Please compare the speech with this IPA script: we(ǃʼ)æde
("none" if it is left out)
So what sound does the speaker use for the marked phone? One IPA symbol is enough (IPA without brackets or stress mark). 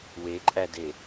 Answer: ǃʼ